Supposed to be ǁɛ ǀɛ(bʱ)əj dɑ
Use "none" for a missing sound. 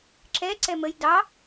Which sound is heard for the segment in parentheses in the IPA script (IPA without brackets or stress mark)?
m